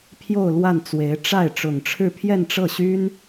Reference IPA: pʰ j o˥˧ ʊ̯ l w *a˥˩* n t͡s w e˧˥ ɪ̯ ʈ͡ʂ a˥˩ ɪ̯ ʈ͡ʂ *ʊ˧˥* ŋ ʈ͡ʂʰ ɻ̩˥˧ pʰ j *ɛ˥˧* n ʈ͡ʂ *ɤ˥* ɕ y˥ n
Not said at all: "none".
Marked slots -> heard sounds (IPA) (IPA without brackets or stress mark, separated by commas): a˥˩, ʊ˨˩, ɛ˥˧, ɤ˥˩